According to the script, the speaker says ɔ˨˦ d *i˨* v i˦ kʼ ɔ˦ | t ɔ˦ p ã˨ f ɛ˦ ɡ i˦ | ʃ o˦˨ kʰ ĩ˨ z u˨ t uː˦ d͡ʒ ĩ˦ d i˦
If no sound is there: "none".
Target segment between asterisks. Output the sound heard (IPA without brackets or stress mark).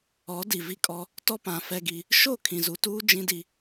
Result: i˨